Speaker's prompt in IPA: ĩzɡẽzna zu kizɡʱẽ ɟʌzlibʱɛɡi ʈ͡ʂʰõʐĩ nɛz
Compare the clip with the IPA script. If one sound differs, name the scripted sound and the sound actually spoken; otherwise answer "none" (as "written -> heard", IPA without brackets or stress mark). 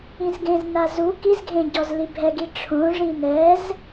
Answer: ʌ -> ɔ